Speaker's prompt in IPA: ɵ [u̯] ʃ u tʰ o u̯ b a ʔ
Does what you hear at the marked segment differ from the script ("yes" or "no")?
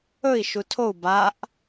yes